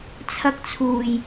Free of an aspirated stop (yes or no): no